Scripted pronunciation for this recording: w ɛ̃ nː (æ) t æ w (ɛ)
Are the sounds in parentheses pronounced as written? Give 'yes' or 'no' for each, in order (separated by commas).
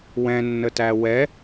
no, yes